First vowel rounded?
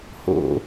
yes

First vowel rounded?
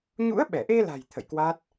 yes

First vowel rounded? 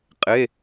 no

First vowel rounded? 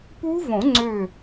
yes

